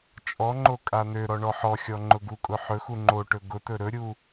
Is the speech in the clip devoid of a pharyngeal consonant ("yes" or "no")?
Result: no